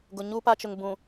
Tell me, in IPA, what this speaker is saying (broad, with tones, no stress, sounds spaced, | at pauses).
ɡ ʊ˨ ɲ u˦ p a˦ t͡ʃ ʊ˨ ŋ b ũ˨